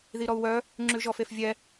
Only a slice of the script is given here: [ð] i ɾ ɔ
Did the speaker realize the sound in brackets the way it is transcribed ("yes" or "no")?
yes